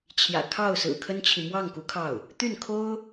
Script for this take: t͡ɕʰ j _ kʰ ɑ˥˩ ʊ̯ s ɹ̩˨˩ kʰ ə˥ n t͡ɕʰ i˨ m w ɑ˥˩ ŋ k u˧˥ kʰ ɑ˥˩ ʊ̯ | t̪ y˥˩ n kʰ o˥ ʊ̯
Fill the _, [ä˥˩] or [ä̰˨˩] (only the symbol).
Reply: ä̰˨˩